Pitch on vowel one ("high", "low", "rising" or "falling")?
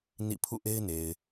falling